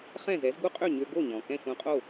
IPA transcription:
χ ɛ̃˥˩ z ɛ˩˥ z ɡ u˥ qʼ ø˥˩ ɲ ø˧ ɡ o˥˩ ɲ ɔ̃˩ k ɛ̃˥˩ ʃ ũ˧ qʼ o˥˩

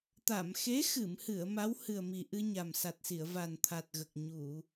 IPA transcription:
t̪ a˨˩˨ m x e˧˥ x ɨ˨˩˨ m h ɨ˨˩˨ ə̯ m a˧˥ w h ɨ˨˩ ə̯ m i˨˩ ʔ ɨ˧ ɲ a˨˩ m s a˨˩ t̚ s i˨˩˨ ə̯ v a˨˩ n t̪ʰ a˨˩ t̚ ɣ ə˨˩ k̚ ɲ u˨˩˨

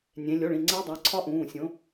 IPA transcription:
nʲ ẽ˨˦ lʲ o˩˧˩ ɭ ĩ˩˧˩ ŋ͡ǀ e˦˥ dˤ æ˩˧˩ ǀʰ ɒ˦˥ ʔ ũː˩˧˩ sʲ õ˨˦

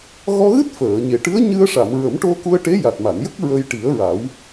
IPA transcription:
ɣ ɔ˧ ɣ ɨ˦˥ t̚ f əː˨˩˨ ɲ e˨˩ ʈ ɨ˧˥ ə̯ ɲ ɨ˧ ə̯ ʂ a˨˩˨ m ɹ ə˨˩˦ m ʈ o˧ k u˧ ə̯ ʈ e˧˥ j a˨˩ t̚ m a˨˩˨ n j ə˦˥ k̚ ɹ ə˧ j ʈ i˨˩˦ ə̯ ɹ a˨˩˦ w

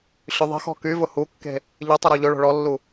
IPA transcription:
ɕ ʏ ðˤ ə̤ x ɔ̤ k y v ʊ h u kː e̤ | ʎ ɪ tˤ ʊ ɾ ɔ ʎ ʊ ɭ o̤ ɭ ɔ lː u

